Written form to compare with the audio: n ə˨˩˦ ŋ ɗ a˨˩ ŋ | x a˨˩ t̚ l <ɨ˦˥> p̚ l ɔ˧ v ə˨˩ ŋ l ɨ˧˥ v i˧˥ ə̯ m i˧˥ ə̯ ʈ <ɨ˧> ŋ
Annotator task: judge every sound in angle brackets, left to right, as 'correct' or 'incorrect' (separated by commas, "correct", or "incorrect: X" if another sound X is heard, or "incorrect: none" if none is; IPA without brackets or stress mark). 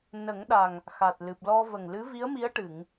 incorrect: ɨ˨˩, incorrect: ɨ˨˩˨